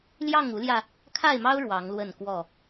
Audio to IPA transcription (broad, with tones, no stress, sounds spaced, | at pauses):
l j ɑ˥˨ ŋ u˨˦ l j ä˧ | kʰ a˥˨ ɪ̯ m ɑ˦ ʊ̯ ɻ w ɑ˨˦ ŋ l w ə˥˨ n k w ɔ˥˨